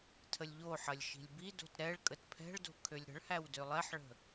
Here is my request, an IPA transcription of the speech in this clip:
tʰ ə lʲ ʎ o ħ ɐ lʲ ʃ i̤ lʲ b i d o̤ t ɾ ɛ ɭ kʼ ə t pʰ ɛ̤ ɭ d o̤ kʰ ø lʲ ɾ ə̤ ɭ h æ w d ø lˠ ɛ ħ ɭ ə̤

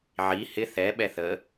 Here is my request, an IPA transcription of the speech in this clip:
ʕ i h ɪ θ ɛ ɓ ɛ θ ə

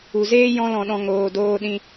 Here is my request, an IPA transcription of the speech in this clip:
u˨ z eː˦ j ɔ̃˧ l ɔ̃˨ ɗ ɔ̃˨ ŋ oː˨ d oː˧ ɗ ĩ˧

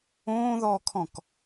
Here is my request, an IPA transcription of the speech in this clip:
õː ð ɔː kʰ ɔ̃ k

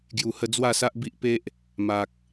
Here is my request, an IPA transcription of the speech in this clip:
ɡ j u˨˩ h ə˧ d͡z w a˥˧ s a˦ ʔ b i˦ ʔ p e˦ ʔ | m a˨ k̚

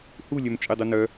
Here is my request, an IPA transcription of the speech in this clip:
h u lʲ œ m t͡ʃʼ e dˤ u n œ

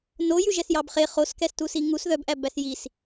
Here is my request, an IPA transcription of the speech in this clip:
n o j ʉ ʒ ɛ s j ɑ b χ e χ o s k ɛ s t u s i ŋ u s ð œ b ʔ æ b æ s j i s

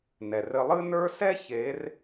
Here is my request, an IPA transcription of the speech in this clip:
n ɛ˩ r ɘ˧ lˠ ɨ˥ n ə˞˥ s ɛ˥ ç e˧˥ r

